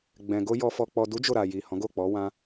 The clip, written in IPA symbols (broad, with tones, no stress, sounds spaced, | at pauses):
ɡ͡b ɛ̃˨ ɡ o˧ j ɔ˨ f ɔ˨ k͡p ɔ˨ d u˨˦ d͡ʒ o˦˨ ɾ a˨ j i˨ h ɔ̃˨˦ ɡ o˦˨ k͡p ɔ˨˦ w ã˦